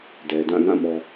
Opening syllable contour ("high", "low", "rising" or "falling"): low